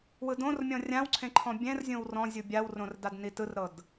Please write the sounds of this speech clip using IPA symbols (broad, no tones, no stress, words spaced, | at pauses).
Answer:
wɯdõrmʲɔ̃ rʲãwǀʰẽ ǃʰɔ̃bʲɛ̃rzʲõw rɔ̃zʲu bʲawrõr dadnitɯrɾɤd